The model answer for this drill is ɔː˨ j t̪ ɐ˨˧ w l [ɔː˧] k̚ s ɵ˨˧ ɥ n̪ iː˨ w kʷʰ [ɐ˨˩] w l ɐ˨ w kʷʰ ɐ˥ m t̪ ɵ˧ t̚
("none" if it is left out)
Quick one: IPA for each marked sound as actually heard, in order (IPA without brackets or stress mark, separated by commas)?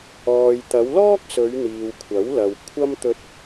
ɔː˥, ɐ˨˥